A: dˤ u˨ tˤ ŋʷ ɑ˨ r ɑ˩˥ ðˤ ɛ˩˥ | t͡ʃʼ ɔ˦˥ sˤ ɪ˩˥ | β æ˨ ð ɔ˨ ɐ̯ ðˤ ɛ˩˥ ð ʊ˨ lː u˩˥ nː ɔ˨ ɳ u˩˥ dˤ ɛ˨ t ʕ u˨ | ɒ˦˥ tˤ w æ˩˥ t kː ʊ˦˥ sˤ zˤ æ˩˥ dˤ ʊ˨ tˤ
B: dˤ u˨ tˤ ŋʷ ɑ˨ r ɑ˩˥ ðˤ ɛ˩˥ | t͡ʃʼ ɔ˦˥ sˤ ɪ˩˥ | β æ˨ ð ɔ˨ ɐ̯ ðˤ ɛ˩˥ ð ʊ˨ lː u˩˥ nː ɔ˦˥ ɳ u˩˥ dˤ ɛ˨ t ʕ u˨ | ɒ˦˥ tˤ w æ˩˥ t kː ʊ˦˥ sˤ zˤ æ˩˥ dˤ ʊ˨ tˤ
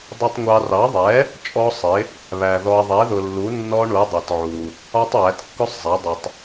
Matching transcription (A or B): B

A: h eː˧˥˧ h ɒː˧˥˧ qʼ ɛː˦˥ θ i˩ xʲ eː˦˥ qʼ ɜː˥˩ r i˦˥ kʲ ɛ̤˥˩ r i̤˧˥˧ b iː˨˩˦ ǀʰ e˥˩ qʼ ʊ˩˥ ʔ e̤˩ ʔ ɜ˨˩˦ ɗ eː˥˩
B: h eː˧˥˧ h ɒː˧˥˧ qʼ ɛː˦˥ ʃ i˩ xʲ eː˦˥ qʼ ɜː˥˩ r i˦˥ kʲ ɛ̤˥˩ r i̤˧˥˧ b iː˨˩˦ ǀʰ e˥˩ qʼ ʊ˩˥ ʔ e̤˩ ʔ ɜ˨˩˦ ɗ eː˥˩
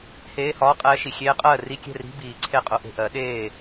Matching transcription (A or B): B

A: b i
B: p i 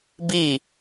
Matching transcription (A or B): A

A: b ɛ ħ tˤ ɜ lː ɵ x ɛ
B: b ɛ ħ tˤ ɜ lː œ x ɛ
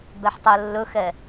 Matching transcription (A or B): A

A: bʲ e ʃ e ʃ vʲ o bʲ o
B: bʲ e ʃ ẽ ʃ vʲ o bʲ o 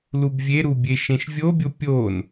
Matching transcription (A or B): B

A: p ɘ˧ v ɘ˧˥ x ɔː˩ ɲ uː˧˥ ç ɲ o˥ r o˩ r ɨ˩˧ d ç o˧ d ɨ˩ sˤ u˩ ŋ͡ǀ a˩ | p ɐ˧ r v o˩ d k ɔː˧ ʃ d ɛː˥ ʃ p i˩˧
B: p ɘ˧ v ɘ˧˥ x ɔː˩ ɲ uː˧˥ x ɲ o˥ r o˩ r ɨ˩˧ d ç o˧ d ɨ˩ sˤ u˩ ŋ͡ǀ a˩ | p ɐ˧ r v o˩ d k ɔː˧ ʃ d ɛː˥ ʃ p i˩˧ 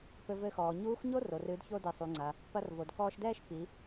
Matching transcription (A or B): B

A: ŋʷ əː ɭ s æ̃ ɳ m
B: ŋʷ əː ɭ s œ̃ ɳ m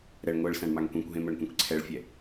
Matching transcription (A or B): A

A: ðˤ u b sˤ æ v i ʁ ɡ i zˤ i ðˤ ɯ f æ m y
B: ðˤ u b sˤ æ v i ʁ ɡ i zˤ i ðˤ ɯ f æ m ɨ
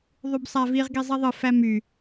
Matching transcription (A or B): A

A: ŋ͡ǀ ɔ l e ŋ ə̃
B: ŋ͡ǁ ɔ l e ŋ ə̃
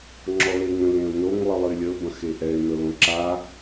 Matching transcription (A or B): B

